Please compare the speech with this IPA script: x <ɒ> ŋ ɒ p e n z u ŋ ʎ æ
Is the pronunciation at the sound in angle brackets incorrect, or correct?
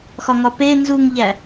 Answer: correct